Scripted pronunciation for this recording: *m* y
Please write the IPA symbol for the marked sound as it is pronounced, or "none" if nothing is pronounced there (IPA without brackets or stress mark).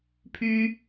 pʰ